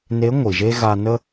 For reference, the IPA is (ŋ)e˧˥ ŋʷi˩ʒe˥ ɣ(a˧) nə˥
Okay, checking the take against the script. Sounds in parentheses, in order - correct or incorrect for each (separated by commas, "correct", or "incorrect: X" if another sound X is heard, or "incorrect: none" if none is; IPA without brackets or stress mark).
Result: incorrect: n, correct